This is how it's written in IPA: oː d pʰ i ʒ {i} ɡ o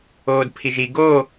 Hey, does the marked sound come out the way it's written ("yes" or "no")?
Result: yes